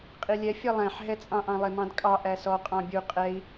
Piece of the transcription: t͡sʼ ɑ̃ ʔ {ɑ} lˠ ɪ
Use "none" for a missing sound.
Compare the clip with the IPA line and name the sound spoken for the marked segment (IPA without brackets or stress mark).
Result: ɑ̃